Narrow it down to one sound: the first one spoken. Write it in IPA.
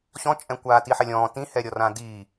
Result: ɕ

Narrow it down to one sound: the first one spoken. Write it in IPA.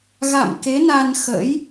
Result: ɣ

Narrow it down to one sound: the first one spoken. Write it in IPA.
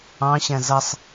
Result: ɑ̃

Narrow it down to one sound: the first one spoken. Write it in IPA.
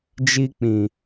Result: d͡ʒ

